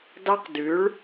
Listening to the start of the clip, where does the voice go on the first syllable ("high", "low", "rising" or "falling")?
high